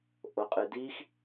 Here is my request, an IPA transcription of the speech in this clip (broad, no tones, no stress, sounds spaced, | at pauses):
ʔ o qʼ ɨ d i x